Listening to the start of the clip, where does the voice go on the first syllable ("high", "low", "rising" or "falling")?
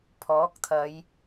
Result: rising